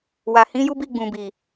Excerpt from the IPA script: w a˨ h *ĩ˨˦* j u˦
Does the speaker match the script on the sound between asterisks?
yes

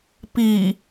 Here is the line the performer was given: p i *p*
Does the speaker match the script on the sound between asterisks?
no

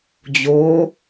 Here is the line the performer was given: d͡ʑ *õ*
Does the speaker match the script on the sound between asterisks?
no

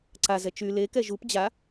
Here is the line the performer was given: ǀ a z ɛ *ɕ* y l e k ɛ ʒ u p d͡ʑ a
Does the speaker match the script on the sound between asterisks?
no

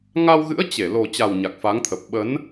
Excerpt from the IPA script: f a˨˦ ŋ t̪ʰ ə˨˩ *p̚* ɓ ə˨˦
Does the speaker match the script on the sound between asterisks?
yes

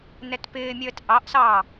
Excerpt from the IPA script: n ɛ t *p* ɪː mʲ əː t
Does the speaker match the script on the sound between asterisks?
yes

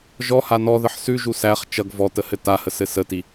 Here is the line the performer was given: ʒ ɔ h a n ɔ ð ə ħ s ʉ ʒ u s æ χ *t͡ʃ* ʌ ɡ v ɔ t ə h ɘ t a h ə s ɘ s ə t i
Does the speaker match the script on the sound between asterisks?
yes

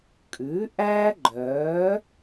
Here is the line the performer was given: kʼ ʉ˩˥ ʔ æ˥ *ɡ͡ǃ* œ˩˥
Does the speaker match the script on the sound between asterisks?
yes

